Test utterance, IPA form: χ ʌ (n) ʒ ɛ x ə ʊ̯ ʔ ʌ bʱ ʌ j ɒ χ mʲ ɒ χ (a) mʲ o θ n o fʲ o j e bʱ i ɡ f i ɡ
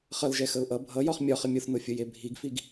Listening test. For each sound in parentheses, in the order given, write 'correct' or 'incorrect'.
incorrect: l, incorrect: ə

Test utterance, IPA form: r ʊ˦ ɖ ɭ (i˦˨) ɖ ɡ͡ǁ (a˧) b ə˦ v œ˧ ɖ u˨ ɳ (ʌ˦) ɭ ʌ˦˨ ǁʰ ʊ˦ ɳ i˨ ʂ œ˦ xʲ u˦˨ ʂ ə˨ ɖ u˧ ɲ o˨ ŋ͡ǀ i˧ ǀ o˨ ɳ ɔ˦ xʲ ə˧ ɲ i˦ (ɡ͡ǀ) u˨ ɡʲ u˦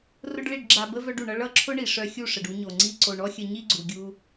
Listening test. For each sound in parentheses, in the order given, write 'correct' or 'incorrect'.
correct, correct, incorrect: ʌ˧, correct

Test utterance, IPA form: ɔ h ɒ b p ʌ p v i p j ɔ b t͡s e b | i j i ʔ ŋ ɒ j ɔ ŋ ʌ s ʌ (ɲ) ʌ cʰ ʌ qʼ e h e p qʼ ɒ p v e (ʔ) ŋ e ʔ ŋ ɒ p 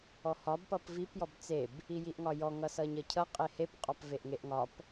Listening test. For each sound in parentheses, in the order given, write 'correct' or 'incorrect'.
correct, correct

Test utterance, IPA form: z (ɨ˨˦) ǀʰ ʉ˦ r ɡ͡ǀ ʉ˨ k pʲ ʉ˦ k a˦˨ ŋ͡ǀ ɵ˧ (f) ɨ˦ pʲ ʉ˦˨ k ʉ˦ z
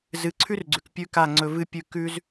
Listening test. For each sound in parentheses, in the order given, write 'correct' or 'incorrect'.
correct, incorrect: v

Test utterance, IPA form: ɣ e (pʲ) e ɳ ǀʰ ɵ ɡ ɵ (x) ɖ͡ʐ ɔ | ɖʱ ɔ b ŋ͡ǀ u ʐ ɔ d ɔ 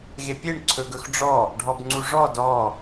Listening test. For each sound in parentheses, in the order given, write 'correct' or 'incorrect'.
correct, correct

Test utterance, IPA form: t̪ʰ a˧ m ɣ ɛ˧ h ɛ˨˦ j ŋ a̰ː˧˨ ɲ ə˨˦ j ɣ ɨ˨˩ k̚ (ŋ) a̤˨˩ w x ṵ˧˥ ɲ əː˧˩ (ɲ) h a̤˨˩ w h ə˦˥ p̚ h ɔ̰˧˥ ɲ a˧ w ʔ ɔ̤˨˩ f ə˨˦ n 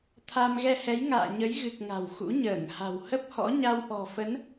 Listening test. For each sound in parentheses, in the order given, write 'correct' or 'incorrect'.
correct, incorrect: ŋ

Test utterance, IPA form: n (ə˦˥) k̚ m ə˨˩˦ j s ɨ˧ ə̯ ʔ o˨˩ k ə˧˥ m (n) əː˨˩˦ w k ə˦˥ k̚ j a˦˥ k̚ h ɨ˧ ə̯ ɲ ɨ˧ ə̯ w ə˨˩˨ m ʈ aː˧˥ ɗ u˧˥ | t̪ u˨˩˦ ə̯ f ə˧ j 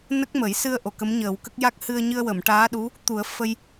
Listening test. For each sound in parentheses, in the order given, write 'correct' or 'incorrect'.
correct, incorrect: ɲ

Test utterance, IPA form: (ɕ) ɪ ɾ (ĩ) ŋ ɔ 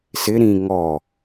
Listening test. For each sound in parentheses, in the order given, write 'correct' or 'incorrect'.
incorrect: s, correct

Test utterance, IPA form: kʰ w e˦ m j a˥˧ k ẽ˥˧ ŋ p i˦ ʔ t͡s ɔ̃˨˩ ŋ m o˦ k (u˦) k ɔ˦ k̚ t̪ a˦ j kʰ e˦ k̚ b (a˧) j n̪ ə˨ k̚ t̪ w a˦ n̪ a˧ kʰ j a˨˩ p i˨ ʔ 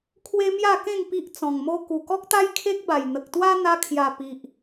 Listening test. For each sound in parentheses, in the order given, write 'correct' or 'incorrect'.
incorrect: u˨˩, incorrect: a˨˩

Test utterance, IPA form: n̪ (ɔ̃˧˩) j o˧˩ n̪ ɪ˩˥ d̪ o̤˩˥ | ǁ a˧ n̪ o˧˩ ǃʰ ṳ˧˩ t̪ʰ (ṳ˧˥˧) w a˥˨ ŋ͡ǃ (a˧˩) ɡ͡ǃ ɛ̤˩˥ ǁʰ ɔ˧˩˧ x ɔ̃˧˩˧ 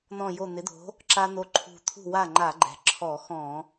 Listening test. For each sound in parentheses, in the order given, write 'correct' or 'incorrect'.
correct, incorrect: ṳ˥˨, incorrect: a˧˩˧

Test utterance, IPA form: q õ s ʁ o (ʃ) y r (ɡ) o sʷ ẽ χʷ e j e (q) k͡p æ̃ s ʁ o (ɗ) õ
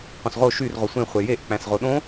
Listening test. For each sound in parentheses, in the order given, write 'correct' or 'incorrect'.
correct, incorrect: ʁ, incorrect: ʔ, correct

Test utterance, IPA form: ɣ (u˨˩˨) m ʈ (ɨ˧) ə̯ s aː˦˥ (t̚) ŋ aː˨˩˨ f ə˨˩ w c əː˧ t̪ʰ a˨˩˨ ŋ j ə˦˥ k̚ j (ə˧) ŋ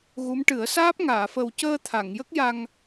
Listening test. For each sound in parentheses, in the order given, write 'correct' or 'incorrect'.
incorrect: u˧˥, incorrect: ɨ˨˩˦, incorrect: p̚, incorrect: a˧

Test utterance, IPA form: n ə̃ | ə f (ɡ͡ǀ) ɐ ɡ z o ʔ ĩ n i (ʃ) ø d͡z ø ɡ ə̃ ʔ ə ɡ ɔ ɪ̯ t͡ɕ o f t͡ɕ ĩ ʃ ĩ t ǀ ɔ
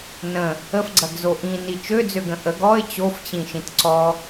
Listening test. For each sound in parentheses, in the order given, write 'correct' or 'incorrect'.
correct, incorrect: t͡ʃ

